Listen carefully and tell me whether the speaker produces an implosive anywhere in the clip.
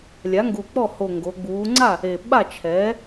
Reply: yes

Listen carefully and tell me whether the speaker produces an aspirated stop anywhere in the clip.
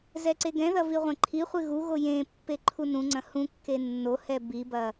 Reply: yes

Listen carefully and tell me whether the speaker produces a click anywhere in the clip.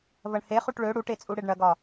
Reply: no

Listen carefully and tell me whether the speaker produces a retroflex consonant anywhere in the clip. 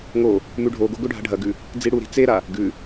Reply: yes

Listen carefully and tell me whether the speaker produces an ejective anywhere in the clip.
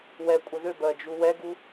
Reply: yes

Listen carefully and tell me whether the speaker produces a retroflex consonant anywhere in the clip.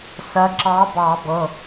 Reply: no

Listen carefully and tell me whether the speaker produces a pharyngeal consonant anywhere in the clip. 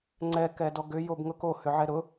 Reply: yes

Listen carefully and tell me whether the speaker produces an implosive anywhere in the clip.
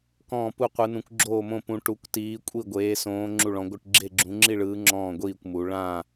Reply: no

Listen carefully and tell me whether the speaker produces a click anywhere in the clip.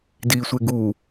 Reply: no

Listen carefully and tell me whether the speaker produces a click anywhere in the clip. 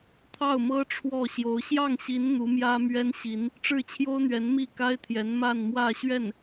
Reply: no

